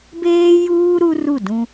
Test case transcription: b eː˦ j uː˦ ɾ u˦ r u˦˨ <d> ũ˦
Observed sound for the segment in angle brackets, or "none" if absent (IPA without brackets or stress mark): d